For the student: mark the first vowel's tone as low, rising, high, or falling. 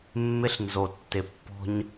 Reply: high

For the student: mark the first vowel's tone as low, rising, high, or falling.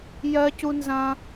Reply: high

